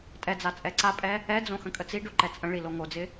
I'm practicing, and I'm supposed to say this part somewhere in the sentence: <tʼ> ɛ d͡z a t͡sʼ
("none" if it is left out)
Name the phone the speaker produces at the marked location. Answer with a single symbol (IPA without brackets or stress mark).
tʼ